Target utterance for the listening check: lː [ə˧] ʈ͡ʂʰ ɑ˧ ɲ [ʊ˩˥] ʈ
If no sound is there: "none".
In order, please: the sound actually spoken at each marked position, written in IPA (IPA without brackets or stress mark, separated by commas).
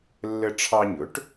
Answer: ə˧, ʊ˩˥